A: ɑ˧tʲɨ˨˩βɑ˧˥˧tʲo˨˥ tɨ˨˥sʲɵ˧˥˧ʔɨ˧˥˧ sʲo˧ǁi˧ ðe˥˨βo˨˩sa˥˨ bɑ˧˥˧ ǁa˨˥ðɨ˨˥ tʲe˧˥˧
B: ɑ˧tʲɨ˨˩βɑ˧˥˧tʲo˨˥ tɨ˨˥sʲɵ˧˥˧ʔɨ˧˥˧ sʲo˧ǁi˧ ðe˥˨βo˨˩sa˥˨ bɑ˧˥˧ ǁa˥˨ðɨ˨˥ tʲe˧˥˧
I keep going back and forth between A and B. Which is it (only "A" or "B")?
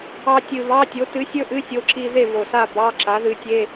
A